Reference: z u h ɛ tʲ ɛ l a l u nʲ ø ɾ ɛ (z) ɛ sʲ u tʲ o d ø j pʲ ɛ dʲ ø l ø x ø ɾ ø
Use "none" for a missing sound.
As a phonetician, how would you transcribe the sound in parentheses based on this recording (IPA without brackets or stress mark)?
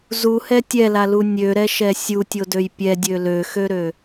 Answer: ʃ